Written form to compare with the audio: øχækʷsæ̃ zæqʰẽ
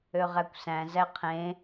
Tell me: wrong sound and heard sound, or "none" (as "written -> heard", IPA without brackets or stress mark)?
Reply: χ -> ʁ